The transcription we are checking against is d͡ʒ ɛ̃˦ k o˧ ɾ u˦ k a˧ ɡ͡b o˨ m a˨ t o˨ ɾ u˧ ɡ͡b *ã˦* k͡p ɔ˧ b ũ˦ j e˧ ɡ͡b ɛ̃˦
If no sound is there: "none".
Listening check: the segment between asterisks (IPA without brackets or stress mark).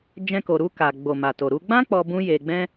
ã˦